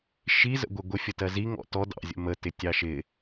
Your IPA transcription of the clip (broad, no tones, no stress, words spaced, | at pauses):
ʃizə̰ ɡʷɪɡʷɪ fʲətɜzi ŋɔ̰tɔ dɑ̰zʲə̰ mə tɪtʲɑʃɪ